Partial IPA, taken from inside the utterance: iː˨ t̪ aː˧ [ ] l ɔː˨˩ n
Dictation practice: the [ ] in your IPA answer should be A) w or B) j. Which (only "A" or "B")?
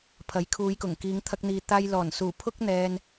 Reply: B